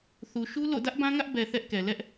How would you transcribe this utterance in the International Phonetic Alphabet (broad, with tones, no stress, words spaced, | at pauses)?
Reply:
θu˨ʃu˦ lo̰˦˨ dä˦ʔbã˦ŋä˦ʔ bɛ˨ θɛ˦ʔkɛ˨ lɛ˦ʔ